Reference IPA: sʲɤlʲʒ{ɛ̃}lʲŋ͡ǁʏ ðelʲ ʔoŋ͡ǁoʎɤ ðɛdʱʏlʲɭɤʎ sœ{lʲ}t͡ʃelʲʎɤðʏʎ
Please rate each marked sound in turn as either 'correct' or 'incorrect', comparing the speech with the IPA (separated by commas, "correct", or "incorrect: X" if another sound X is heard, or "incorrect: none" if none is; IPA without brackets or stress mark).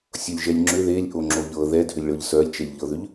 incorrect: ɛ, correct